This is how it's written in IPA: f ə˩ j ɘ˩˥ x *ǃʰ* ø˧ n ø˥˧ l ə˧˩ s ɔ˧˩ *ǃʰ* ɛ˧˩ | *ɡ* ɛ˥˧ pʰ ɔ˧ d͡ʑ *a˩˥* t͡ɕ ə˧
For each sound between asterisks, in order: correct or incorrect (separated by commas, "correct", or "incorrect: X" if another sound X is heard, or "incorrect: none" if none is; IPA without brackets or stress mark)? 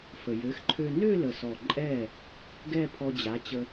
correct, incorrect: ǃʼ, correct, correct